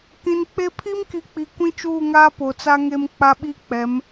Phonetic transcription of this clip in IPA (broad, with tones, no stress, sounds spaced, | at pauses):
k ĩ˨ n k͡p e˦ pʰ i˦ m k i˨ k͡p i˨ kʷ ĩ˦ t͡ʃ uː˦˨ ŋ aː˦ p o˨ t͡s a˦ ŋ e˦ m k͡p a˦ ɓ i˦ k͡p ɛ˨˦ m